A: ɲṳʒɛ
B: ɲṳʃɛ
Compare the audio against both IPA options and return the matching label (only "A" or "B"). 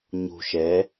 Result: B